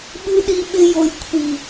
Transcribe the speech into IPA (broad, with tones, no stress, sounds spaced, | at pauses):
ɓ ɨ˧ ɗ i˧ ɓ ɪ˧ j o˨ j kʷʰ i˨